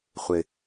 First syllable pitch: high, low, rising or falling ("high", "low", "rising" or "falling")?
high